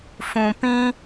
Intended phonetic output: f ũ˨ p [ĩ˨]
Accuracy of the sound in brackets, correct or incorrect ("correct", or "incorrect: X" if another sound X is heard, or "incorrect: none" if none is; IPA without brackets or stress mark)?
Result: incorrect: ĩ˦